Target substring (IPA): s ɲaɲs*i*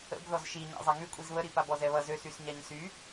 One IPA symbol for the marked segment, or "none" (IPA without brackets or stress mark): y